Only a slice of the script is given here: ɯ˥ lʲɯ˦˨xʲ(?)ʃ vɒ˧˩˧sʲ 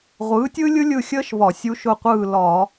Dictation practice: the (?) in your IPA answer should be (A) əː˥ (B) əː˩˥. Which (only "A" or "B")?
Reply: A